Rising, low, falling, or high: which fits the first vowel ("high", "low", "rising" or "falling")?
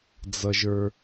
low